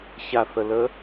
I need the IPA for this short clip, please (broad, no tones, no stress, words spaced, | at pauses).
çaθələ